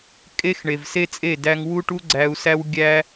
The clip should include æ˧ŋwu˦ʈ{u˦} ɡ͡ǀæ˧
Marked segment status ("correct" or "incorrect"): correct